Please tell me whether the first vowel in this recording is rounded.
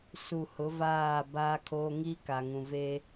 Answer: yes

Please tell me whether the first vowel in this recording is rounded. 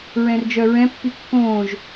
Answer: no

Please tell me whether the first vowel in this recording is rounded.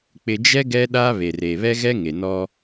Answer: no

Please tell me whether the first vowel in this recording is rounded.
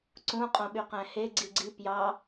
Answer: yes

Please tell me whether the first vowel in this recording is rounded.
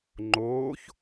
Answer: yes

